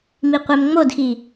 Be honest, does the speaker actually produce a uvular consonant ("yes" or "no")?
yes